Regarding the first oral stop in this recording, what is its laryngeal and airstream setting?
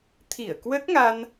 aspirated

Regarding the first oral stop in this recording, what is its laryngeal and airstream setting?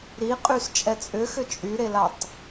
ejective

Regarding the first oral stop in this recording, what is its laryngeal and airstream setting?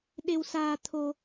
implosive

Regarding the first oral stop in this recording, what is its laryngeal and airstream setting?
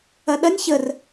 implosive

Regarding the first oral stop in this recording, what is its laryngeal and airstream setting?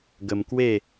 plain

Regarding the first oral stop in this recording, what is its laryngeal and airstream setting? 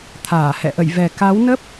aspirated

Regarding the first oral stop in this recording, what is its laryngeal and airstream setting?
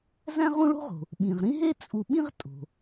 implosive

